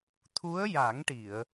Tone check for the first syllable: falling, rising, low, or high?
rising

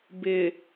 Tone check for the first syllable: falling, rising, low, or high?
low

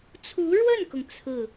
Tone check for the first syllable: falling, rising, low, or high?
rising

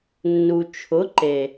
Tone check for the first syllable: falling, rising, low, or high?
low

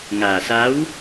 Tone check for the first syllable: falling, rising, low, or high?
low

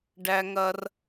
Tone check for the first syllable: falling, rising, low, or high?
high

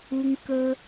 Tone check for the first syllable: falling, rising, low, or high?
high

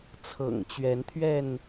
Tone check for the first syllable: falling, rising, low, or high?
low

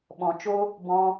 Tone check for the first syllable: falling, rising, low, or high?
low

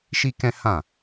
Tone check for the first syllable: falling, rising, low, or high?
high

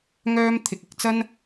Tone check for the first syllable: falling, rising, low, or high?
high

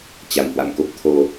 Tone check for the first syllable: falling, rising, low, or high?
low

